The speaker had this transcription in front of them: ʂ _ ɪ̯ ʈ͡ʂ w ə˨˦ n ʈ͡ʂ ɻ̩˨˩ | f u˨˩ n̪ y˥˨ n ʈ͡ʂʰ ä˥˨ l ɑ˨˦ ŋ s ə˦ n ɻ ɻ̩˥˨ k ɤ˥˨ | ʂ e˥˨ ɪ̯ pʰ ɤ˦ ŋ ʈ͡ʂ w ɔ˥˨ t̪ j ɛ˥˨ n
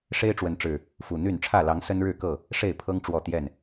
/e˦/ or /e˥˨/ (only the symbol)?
e˦